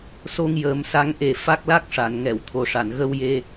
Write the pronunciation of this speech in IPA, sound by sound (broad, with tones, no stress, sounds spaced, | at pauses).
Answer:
s o˧ ŋ j əː˨˩˦ m s a˧˥ ŋ ʔ e˨˩ f a˦˥ k̚ l a˦˥ k̚ ʂ a˨˩˨ n ŋ ɛ˨˩˨ w t̪ʰ o˨˩ ʂ a˨˩˨ n ɣ ə˧ w j e˧